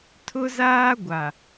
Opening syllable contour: high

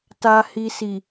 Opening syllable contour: low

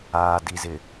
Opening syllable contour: low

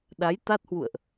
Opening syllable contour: rising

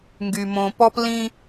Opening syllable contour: low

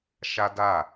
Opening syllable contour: high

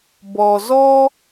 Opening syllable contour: low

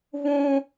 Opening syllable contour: high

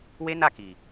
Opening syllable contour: high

